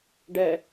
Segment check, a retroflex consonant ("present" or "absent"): present